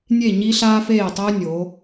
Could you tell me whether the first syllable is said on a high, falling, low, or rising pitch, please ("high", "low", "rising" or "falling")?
falling